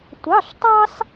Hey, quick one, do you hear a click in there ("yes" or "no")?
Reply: no